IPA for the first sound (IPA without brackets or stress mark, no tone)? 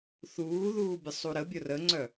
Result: θ